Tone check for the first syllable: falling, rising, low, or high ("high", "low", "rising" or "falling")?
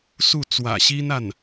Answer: falling